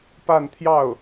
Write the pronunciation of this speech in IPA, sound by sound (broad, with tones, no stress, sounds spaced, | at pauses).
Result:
p a˥˧ n t̪ʰ j ɑ˥˩ ʊ̯